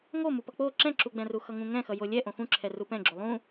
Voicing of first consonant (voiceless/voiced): voiced